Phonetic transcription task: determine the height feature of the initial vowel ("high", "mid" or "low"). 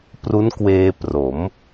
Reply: high